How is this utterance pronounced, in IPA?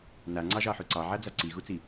n a ŋ͡ǀ ɑ ʒ ɑ ħ ʉ ǀ ɑ ʕ a d͡z a ǀ i ɣ u t͡s i

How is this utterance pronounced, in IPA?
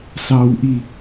s ɑ w ʔ i

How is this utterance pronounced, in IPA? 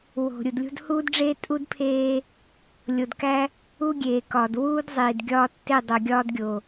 w o̤˨ ɾʲ u˨ d lʲ o̤˦ d h uː˦ d ɖ͡ʐ eː˦ tʼ u˦ d pʰ eː˦ | lʲ o˨ d k æ˦ | u˦ ɡʲ eː˨ k ɒː˨ d w uː˦ d zˤ iː˨ d ɡʲ ɒː˦ tː e˦˨ dˤ o˨ ɡʲ ɒː˦ d ɡʲ o˨

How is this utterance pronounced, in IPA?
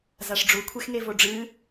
z a ʂ ɖ͡ʐ u kʷʰ e x ŋ e v o ɖ͡ʐ ɨ

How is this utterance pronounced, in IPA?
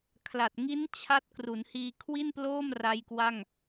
kʰ l a˨˩ t̚ ŋ i˦˥ n t͡ɕʰ a˦˥ t̚ k r u˩˦ n h iː˧ kʰ w i˥˩ n p l oː˥˩ m r a˦˥ j k w a˥˩ ŋ

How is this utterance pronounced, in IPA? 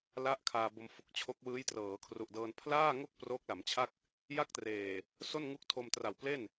l a˦˥ ʔ kʰ aː˧ b o˧ m f u˨˩ k̚ t͡ɕʰ o˦˥ k̚ w ɯː˦˥ j t r ɤː˩˦ kʰ r u˨˩ ʔ d ɤː˧ n pʰ l aː˥˩ ŋ o˥˩ k̚ p r o˦˥ k̚ l a˩˦ m t͡ɕʰ a˥˩ k̚ | j a˥˩ k̚ t r eː˨˩ | s o˥˩ n ŋ u˦˥ k̚ tʰ o˧ m t r a˨˩ w p l e˥˩ n

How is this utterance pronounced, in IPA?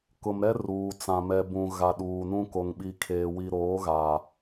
k ʊ˨ m ɾ ɛ˦ r uː˨ t͡s ã˨ m ɛ˨ b ũ˨ ɣ a˨ ɗ uː˨ n ũ˦ k o˨ ŋ ɓ i˨ kʰ eː˨ w i˨ ɾ oː˨˦ ɣ aː˨

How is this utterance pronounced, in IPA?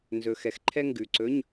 n z ɵ˧ x ɛ˧ x ǃʰ ɛ˥ ŋ ɡ ʉ˨˩ ǀ ɵ˧˥˧ ɲ

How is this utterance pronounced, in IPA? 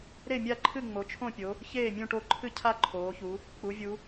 ɾ e˥˨ mʲ a˥˨ ǃʰ ɨ˥˨ ŋ͡m o˩˧ t͡ʃʰ õ˥˨ pʲ o˩˧ | ç eː˥˨ mʲ ũ˥˨ ʈ o˥˨ ǃʰ ɨ˥˨ cʰ a˥˨ ǃʰ oː˩˧ ç u˩˧ | k͡p u˩˧ vʲ u˩˧

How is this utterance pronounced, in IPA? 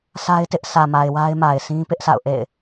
sʰ a˦ ɪ̯ t ɪ˦ ʔ s ä˨ m a˨ ɪ̯ w a˦ ɪ̯ m a˨ ɪ̯ s ĩ˦ p ɪ˦ ʔ s a̰˦˨ ʊ̯ ʔ ḛ˦˨ ɪ̯

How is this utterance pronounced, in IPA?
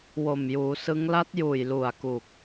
w o˨˩ m j uː˩˦ s ɯ˦˥ ŋ l a˦˥ t̚ j uː˨˩ j l u˨˩ a̯ k u˨˩ k̚

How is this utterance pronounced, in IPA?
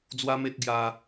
d͡z w a˦ m e˦ t̚ ɡ j a˦

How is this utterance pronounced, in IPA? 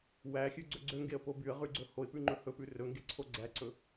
w æ xʲ ʉ ɡ͡ǀ ɵ ɡ͡ǀ ø ŋ ɡ e ə̯ p o b y ə̯ ʁ y ɡ͡ǀ ɵ h o ɪ̯ p ʉ ŋ͡ǃ ɵ h ɵ p ʉ r ɵ ŋ ɡ e ǀʰ o ɡ͡ǀ æ ǀ ɵ

